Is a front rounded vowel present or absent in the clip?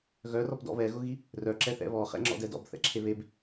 present